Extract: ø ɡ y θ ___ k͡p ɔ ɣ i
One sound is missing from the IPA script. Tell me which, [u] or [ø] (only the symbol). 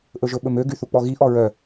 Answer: u